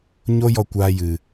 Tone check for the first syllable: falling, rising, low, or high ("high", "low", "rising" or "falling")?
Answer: high